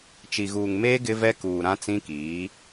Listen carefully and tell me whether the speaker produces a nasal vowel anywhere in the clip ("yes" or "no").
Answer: yes